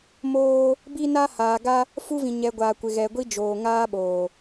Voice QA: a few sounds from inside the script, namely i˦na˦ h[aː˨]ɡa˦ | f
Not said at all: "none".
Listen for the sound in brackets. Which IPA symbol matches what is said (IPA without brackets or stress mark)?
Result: aː˨